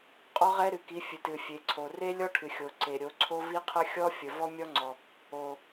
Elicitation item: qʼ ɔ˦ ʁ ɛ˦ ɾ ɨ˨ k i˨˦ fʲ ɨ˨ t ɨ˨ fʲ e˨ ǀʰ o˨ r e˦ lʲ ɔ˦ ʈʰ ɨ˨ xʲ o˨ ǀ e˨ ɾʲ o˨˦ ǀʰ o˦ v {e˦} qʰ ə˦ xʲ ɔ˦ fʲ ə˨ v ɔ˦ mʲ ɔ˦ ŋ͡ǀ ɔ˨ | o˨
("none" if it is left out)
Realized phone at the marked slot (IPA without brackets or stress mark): i˦